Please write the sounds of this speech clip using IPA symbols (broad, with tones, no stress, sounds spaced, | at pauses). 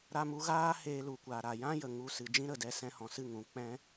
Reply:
ɾ a˧ m u˧ ɣ aː˦ h eː˧ l u˨ kʷ a˨ ɾ a˨ j ã˦ j ə˨ ŋ u˧ s ɨ˨ d͡ʒ ĩ˧ ɾ ə˨ d ɛ˧ s ɛ̃˧ h ɔ̃˨ s ɨ˦˨ ŋ ũ˨ k͡p ɛ̃˦